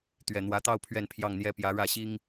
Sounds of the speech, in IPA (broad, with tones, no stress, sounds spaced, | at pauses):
t̪ ɥ ɛ˨˩ n̪ w ä˧˥ t̪ ɑ˥˧ ʊ̯ pʰ ɥ ɛ˥˧ n pʰ j ɑ˥˩ ŋ n̪ j ɛ˥ p j ä˧˥ ɻ ä˥˩ ɕ i˥ ŋ